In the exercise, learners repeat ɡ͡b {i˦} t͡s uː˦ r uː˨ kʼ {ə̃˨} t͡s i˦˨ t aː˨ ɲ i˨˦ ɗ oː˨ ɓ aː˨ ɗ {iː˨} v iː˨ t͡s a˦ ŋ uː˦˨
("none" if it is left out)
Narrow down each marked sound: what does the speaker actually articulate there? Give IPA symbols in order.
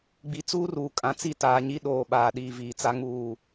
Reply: i˨, ã˨, iː˨

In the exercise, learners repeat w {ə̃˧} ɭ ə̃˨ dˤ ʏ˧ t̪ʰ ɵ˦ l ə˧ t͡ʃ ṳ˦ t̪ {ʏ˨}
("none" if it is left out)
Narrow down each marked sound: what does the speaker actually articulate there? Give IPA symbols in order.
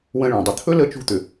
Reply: ə̃˧, ʏ˨

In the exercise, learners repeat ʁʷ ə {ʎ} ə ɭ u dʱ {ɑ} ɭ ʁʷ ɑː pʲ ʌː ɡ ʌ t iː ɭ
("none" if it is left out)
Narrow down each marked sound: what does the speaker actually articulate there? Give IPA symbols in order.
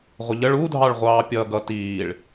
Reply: ʎ, ɑ

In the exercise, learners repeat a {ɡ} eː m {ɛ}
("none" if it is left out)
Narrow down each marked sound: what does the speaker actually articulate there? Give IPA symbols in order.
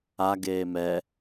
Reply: ɡ, ɛ

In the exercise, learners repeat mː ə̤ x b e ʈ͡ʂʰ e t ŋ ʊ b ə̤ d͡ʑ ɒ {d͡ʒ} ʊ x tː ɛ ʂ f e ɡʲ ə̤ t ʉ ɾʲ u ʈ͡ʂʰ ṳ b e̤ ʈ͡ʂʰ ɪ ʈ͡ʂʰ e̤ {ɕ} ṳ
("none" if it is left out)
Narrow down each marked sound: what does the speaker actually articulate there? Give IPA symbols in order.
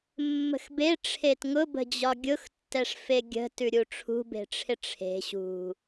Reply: ɡʲ, ɕ

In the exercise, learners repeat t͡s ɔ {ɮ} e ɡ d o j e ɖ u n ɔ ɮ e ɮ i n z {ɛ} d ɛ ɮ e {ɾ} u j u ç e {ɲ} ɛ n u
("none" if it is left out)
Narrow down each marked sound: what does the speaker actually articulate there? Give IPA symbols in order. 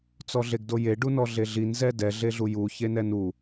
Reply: ɮ, ɛ, ɮ, n

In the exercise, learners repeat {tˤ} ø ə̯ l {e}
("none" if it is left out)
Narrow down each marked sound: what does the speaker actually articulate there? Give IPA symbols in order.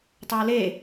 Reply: tˤ, e

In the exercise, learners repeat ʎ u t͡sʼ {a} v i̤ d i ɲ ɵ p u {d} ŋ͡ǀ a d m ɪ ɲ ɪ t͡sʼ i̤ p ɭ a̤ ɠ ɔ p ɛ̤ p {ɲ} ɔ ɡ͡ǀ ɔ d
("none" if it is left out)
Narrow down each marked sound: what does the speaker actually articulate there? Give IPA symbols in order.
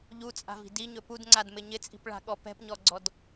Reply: a̤, d, ɲ

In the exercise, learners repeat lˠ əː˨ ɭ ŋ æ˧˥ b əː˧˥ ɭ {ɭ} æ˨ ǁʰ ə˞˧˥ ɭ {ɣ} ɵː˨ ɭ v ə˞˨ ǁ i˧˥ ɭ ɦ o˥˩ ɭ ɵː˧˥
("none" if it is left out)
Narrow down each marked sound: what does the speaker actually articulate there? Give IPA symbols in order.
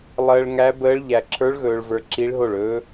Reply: ʎ, ɣ

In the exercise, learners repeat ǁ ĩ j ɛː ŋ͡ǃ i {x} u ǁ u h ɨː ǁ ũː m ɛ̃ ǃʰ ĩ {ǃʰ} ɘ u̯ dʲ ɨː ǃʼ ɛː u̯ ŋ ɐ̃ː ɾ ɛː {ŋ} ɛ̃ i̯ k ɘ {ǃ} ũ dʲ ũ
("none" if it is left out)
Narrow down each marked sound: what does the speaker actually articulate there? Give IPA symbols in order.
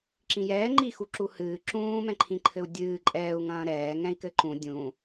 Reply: x, ǃʰ, ŋ, ǃ

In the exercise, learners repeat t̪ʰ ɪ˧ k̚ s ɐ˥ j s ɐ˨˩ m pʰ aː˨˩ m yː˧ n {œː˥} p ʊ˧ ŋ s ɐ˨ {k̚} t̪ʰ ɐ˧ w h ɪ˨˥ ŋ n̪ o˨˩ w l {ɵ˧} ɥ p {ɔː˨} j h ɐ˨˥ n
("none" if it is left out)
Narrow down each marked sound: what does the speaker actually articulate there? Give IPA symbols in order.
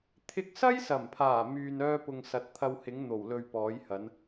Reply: œː˥, t̚, ɵ˧, ɔː˨˥

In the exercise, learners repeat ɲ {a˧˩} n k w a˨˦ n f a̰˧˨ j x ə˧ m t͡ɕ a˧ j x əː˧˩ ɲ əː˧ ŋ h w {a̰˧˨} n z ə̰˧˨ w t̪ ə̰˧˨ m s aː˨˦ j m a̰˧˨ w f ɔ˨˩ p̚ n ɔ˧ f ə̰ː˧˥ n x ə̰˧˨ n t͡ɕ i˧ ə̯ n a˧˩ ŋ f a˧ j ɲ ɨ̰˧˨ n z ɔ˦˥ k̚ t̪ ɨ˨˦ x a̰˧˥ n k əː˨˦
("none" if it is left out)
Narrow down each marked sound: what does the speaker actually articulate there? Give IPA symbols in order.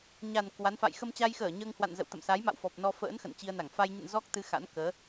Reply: a˨˩, a̰˧˨

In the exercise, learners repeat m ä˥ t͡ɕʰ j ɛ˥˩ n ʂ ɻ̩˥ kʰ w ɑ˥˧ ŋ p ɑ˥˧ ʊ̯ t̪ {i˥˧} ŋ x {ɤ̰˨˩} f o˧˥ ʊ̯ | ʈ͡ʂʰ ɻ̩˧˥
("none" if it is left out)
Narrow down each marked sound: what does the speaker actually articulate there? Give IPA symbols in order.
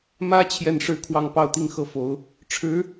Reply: i˥˧, ɤ˥˩

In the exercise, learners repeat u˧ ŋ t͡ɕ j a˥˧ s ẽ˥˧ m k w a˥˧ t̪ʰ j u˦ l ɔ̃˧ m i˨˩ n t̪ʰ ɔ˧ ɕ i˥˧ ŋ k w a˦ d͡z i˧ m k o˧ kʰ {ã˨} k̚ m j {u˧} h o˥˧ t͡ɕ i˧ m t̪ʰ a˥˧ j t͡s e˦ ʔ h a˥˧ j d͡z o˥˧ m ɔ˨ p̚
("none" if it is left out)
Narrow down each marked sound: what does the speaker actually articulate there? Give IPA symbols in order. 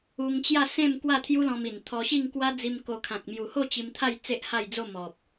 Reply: ã˨, u˨˩

